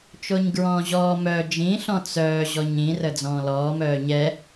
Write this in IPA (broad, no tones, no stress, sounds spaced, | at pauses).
t͡ʃ o ɲ ɡ ɹ ɔ̃ː ʑ ɔː m œ d͡ʒ ĩ ɬ ɔ̃ t͡s œː ʑ ɔ ɲ ĩ r ə d͡z ɔ̃ː l ɔː m œː ɲ ɛ